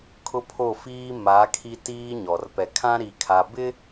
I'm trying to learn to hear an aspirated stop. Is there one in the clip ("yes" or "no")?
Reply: yes